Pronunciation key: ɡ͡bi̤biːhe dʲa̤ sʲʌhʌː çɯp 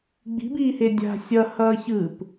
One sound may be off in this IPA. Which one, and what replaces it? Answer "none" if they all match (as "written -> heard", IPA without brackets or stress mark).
none